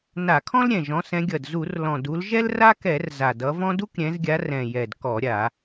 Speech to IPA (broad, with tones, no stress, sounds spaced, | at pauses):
n a˧˩˧ kʰ ɔ̃˥ l ɾʲ ɛ̃˨˩ ʒ ɔ̃˨˦ s ɛ̃˨˦ ɡʲ ʌ˨˩ d z u˧˩˧ r l ɔ̃˨˩ d u˨˦ l ʒ ɛ˥ l r a˥ k ɛ˧˩˧ r z a˨˩ d ʌ˨˦ v ɔ̃˥ d u˥ k ɾʲ ɛ̃˨˦ z ɡʲ a˨˦ r ɛ̃˨˩ j ɛ˨˩ d k ɔ˧˩˧ ɾʲ a˧˩˧